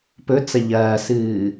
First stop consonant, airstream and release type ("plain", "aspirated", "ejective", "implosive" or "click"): plain